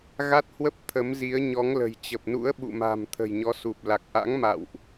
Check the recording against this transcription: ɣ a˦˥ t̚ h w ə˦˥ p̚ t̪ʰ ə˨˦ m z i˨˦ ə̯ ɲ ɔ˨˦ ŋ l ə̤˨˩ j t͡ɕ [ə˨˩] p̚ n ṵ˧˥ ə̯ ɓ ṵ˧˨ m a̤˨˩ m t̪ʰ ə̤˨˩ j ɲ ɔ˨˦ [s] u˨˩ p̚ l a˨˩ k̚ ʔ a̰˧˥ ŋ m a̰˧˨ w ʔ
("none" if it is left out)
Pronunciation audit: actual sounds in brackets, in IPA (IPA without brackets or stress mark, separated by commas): ə˨˩, s